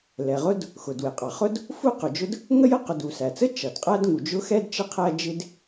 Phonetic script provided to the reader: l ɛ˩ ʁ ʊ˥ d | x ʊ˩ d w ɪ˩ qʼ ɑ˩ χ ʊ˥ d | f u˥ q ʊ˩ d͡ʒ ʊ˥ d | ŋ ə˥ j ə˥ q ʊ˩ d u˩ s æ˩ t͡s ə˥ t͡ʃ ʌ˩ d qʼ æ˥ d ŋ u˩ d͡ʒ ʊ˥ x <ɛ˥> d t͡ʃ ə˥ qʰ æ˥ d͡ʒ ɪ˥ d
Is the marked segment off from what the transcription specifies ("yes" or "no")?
no